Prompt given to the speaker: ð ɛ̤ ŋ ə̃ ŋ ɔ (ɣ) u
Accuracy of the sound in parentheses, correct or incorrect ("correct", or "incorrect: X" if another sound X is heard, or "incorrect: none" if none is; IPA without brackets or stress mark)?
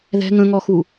incorrect: x